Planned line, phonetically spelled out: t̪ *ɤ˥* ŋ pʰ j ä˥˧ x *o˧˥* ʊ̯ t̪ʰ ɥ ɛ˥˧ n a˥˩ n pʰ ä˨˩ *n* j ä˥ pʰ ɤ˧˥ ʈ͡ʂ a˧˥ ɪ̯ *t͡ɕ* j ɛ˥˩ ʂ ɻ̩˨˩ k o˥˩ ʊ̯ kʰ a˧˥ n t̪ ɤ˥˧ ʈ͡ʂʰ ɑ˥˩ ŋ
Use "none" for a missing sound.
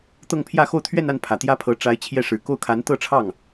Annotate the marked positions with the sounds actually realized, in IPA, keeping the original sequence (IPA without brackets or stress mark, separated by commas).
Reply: ɤ˥˧, o˥˧, t̪, t͡ɕʰ